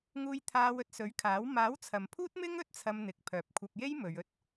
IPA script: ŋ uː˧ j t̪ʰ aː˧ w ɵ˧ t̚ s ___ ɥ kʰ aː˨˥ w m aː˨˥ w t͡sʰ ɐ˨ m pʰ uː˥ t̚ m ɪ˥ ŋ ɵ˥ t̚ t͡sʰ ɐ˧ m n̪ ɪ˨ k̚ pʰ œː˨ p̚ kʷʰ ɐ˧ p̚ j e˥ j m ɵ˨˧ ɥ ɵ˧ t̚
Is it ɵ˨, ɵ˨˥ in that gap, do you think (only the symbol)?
ɵ˨˥